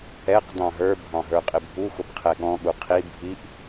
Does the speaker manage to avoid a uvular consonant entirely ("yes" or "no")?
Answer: no